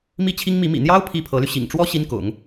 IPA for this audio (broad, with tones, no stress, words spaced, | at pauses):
mi˥t͡ɕʰi˥ŋmi˧˥ mḭ˨˩n̪jɑ˥ʊ̯ pʰi˥pʰɤ˧˥ly˧ ɕḭ˨˩ŋʈ͡ʂwɔ˥ ɕi˥nkʊ̰˨˩˦ŋ